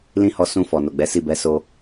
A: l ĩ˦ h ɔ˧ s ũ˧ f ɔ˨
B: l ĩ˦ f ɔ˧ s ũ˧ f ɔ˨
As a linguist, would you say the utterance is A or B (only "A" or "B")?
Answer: A